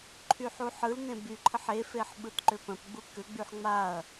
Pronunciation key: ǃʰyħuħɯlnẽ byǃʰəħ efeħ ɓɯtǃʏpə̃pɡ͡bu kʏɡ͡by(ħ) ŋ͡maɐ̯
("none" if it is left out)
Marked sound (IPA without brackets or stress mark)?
ħ